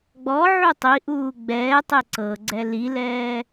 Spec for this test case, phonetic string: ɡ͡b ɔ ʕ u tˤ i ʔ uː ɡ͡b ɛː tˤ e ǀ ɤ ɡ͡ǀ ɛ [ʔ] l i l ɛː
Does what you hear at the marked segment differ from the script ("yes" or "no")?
yes